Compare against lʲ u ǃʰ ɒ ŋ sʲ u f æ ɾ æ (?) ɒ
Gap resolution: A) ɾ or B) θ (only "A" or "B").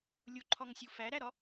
A